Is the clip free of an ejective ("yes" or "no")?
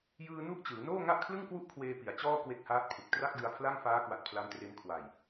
yes